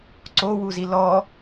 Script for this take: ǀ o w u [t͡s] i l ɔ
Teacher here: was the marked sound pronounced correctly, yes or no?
no